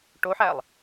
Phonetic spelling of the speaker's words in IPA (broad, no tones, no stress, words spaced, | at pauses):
ʈoħælˠ